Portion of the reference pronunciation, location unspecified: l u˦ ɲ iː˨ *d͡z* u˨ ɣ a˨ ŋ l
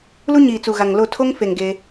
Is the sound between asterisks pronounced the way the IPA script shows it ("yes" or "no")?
no